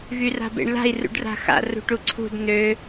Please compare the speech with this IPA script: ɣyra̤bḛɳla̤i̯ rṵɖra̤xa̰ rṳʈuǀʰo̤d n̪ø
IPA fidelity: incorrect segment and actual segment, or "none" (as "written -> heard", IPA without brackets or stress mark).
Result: o̤ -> ṳ